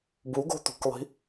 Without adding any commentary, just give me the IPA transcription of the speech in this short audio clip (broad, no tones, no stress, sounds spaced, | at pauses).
b u ɡ o̤ t̪ ṳ k lˠ i̤